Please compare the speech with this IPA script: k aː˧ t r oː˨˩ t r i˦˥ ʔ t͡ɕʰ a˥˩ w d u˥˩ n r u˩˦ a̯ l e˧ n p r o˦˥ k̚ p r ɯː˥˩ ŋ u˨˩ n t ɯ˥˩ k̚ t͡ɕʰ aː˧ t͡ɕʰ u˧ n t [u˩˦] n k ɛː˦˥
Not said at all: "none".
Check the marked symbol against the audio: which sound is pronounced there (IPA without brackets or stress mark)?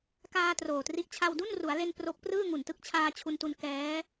u˧